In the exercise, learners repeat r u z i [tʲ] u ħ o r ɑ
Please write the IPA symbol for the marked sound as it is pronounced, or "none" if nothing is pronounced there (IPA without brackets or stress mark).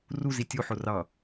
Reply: tʲ